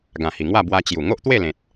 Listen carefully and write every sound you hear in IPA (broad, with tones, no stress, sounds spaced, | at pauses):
ɡ ã˨˩ h i˨˩ ŋ w a˥˧ b w a˧ t͡ɕ j u˨˩ ŋ o˦ ʔ t̪ w e˥˧ l ẽ˨ t̚